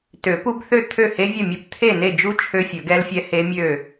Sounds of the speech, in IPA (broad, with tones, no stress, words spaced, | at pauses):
tø˨˩˦pu˦˥bθø˥˨ t̪ʰø˥˨he˦˥vʲɵ˥˨mʲɵ˦˥p t̪ʰe˥˨ne˥˨d͡ʒu˦˥ t͡ʃʰø˦˥fʲɵ˨˩˦ɡɛ˦˥lfʲɛ˦˥ he˦˥mʲø˥˨